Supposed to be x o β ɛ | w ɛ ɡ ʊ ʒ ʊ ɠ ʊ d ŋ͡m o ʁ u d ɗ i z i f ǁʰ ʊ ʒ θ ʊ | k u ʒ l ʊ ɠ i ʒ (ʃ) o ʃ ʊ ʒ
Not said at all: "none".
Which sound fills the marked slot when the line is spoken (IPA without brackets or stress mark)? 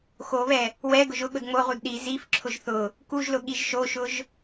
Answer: ʃ